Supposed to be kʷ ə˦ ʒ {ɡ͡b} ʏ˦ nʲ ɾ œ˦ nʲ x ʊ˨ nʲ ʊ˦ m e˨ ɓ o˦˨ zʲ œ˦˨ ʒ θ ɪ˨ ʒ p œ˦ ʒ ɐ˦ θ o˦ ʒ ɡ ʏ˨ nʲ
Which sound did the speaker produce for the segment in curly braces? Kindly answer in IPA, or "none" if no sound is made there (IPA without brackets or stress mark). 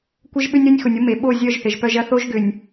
ɓ